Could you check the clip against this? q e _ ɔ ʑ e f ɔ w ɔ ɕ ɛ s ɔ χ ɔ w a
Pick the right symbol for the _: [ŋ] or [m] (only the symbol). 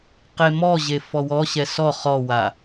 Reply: m